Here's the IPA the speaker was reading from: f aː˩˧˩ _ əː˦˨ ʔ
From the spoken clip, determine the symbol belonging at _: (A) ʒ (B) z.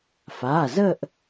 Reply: B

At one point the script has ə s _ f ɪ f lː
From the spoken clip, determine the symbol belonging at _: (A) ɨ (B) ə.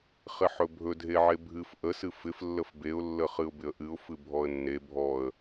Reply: A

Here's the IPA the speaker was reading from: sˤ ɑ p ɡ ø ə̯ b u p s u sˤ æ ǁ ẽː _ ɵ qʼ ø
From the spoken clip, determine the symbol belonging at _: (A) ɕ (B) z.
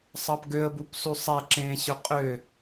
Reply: A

